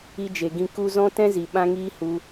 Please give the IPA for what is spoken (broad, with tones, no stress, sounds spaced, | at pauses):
i˧ d͡ʒ e˨ ɡ ĩ˧ k u˧ z ɔ̃˦ t ɛ̃˦ z i˨ ɓ ã˦ ŋ iː˦ h u˧